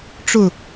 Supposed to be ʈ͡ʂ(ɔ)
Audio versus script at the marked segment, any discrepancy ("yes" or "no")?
yes